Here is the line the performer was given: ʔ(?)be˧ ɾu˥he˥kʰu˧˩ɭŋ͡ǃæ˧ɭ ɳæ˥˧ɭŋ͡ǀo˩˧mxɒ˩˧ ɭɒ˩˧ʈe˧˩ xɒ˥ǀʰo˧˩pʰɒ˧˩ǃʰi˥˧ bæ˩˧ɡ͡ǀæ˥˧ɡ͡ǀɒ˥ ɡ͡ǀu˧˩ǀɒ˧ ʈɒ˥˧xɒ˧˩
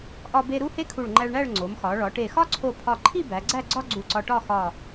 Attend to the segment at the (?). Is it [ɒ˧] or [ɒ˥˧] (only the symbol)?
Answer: ɒ˧